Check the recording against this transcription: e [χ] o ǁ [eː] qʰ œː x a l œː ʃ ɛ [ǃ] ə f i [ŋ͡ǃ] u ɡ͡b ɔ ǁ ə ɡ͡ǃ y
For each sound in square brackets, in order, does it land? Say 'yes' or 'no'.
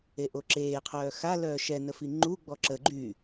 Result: no, yes, no, yes

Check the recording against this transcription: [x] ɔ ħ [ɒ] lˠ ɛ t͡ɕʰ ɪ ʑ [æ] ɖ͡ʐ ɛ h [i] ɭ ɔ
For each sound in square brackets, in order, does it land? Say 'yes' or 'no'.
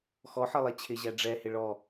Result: yes, no, yes, no

